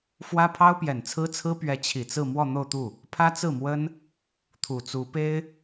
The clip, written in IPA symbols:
f w ä˥ pʰ ɑ˥ ʊ̯ p j ɛ˨˩ n t͡sʰ ɹ̩˥ t͡sʰ ɹ̩˥ p ɥ ɛ˧˥ t͡ɕʰ i˨˩ t͡s ɹ̩˥˧ m w ɔ˥˧ n̪ o˥˧ ʊ̯ t̪ u˥˩ | pʰ ä˥ t͡s ɹ̩˥˩ m w ə˥ n | t̪ʰ u˨˩ t͡s u˧˥ p e˥ ɪ̯

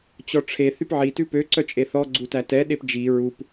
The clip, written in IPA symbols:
t͡ɕ ɔ ʈ͡ʂʰ e θ y p ʕ i t ʉ p ø ǀ œ t͡ʃʼ e θ ɔ ɡ͡ǀ u t æ t ɛ ɗ e p d͡ʒ i ɹ u p

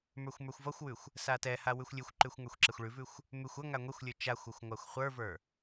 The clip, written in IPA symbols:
m ə˞ xʷ m ə˞ xʷ v ʌ xʷ w ʉ xʷ | s a t ɛ h a w ʉ xʷ lʲ ʉ xʷ ǃ ʉ xʷ ŋ ə˞ xʷ ǁ ɛ xʷ ɭ ʉ v ʉ xʷ | m ʉ xʷ ʌ ŋ a ŋʷ ɛ xʷ lʲ ə˞ t͡ʃ a xʷ ʌ xʷ ŋʷ a xʷ χʷ ə˞ v ə˞

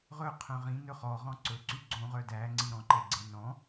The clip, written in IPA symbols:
ʁ ɵ qʰ œ̃ ʁ ĩ n ɵ χ ɔ ʁ ɔ̃ ǀ ɵ ǀ y ɡ͡ǀ õ ʁ œ d æ ŋ͡ǀ i ɾ ɔ̃ ǃ e ɡ͡ǀ e n ɔ̃

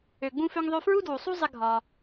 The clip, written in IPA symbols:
ø˩ ɡ͡b ũ˥ f ø˥ ŋ ðˤ ø˥ f ɹ u˥ d w u˩ sˤ u˥ zˤ ɪ˥ ɡʱ ɒ˩

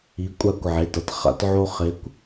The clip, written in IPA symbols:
i˨˥ kʷʼ a˦ kʷ ʕ e˩˧˩ t ʌ˦ t χ a̰˦ t ʕ o˦ χ e˨˥ kʷ

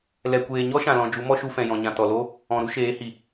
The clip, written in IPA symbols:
l ɛ˨ kʷ eː˨ ɲ ɔ˦ ʃ ã˨ l ɔ̃˨ d͡ʒ u˨˦ m ɔ˦ ʃ u˧ f ɛ̃˨ j ɔ̃˨ ɲ ã˨ t ɔ˨ l o˦ | ɔ̃˨ ɾ u˦ ʃ eː˨˦ h i˨

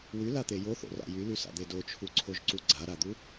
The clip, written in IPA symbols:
w y l a t̪ e j o θ o̰ r a̰ j y l y s a̰ d̪ e d o t͡ʃʰ u ǀʰ o ʒ ǀ u ɡ͡ǀ a ɾ a d̪ u

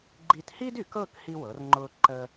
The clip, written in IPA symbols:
ɡ͡ǃ i˧ t h i˥ d y˩˧ k ɤ˥˧ k h i˧ w ɤ˩˧ r ŋ͡ǃ ʊː˧ ǃ əː˧

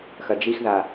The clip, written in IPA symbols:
x ɐ d͡ʒ i x ð a

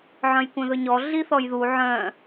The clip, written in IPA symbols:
ʕ œ̃ j kʷ œ̃ ð ɵ ɲ ɔ ɮ i θ ɔ j ð u ʕ œ̃

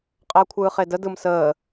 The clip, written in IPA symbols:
qʼ əː kʷʰ ɯː χ e d ə d ɯ m s əː

